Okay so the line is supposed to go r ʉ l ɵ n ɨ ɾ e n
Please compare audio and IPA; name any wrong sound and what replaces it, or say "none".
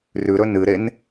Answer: l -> ɾ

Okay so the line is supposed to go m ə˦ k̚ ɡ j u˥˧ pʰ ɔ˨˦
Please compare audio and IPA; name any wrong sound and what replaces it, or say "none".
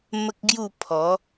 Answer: none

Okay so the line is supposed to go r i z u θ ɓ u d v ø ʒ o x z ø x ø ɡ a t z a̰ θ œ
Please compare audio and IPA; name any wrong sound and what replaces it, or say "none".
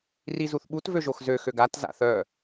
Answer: d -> t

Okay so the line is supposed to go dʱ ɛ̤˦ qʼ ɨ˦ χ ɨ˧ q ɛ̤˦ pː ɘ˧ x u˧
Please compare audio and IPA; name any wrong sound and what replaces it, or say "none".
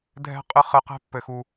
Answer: none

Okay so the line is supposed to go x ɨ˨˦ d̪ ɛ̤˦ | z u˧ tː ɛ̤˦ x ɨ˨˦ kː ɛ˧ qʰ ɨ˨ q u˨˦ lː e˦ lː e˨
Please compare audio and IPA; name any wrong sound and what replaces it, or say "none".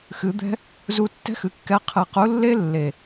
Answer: none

